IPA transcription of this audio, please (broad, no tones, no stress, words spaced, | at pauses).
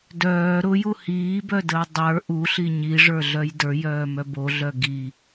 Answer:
dœː ɾʊju hiːbœdəː dˤə˞ ʔuɬi ɲiʐə˞ɮœj də˞jœːmœ boɮœ ɡi